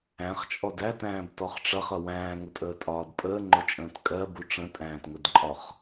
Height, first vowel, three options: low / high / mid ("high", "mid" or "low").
low